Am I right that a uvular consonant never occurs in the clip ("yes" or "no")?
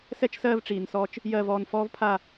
yes